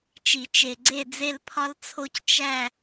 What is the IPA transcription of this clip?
t͡ʃ i˨˩˦ t͡ʃ e˨ ɡ͡ǀ e˥˨ d͡z e˥˨ l pʰ ɒ˦ l t͡sʰ o˦ c t͡ʃ æ˥˨

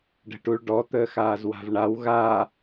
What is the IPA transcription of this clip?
ɖ ə̤ ʈ u ɭ ɖ ɔ t̪ əː x aː z w a̤ v ɳ a w ɣ a

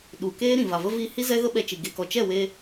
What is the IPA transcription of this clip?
ɗ u˨ k eː˦ ɾ ĩ˨ v a˨ v ə˦ v iː˦ h i˦ z ɛ˦ ɣ ə˦ ɓ ɛ˧ t͡ʃ i˨ ɡ e˨ k ɔ˨ t͡ʃ ɛ˦˨ w e˧

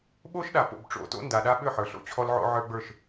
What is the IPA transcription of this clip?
ɓ o˦ ʃ ɗ a˨ p o̰˨ b ʈ͡ʂ o̰˨ t o̰˦ n d a˨ ɗ a˦ ɓ ʏ˦˨ ħ ə˞˨ ɬ o̰˨ t͡ɕʰ ɔ˦ l ʕ o̰˦ ʕ ə˞˦ ɡ͡b ə˞˦˨ ʃ

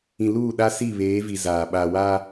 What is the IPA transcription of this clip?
ĩ˨ l uː˦˨ ɗ a˦ s i˦˨ β eː˨˦ v i˨ z aː˨ ɓ aː˨ w aː˦

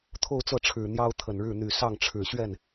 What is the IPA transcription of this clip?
t̪ʰ o˥˧ ʊ̯ t͡s ɤ˥˩ ʈ͡ʂʰ ɻ̩˨˩ n̪ j ɑ˥ ʊ̯ t̪ʰ ə˨˩ n ɻ ɻ̩˥˩ n̪ y˨˩ s ɑ˥˩ ŋ ʈ͡ʂʰ ɻ̩˨˩ ɕ ɥ ɛ˥˩ n

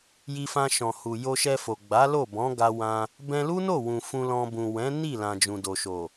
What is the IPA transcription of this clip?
j i˧ f ã˧ ʃ ɔ̃˨ h u˨ j o˧ ʃ ɛ˧ f o˨ ɡ͡b a˨˦ l o˦˨ b ɔ̃˨˦ ɡ a˧ w ã˧ | b ɛ̃˧ l u˦ n o˦˨ w ũ˨ f ũ˧ l ɔ̃˧ b ũ˨ w ɛ̃˨˦ n i˦˨ l ã˨ d͡ʒ ũ˨ d o˨ ʃ o˨

